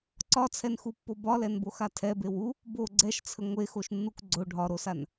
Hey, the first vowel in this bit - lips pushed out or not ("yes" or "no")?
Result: yes